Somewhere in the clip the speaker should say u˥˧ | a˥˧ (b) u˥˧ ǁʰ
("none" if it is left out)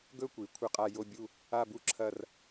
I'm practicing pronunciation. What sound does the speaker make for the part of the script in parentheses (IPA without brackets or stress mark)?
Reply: b